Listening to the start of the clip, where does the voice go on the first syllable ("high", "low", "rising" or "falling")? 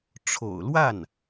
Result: low